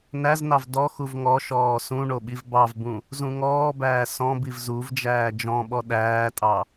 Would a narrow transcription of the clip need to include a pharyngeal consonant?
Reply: no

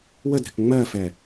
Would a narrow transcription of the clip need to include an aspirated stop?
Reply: no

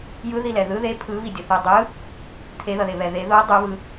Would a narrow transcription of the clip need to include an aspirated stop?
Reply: yes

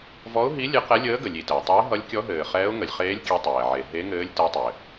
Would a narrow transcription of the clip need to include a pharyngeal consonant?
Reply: yes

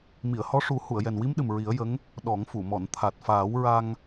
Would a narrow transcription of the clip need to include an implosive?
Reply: yes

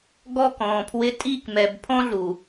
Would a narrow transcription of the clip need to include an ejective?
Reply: yes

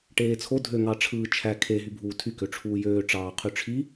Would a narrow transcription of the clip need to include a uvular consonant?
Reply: yes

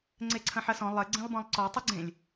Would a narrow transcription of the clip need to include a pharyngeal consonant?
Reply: yes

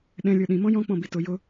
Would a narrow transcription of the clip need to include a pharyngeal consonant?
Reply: no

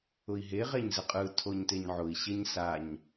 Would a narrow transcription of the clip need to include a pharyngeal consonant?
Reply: yes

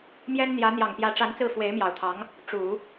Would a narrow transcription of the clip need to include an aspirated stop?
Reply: yes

